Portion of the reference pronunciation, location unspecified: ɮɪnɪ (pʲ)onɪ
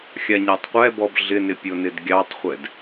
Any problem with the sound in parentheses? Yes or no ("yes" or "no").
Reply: no